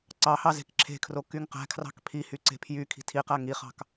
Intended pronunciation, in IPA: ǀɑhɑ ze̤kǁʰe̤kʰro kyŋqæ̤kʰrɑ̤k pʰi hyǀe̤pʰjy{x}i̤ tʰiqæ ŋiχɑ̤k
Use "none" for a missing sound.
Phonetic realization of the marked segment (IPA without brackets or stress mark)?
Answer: kʰ